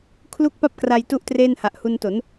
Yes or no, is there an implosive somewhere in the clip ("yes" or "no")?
no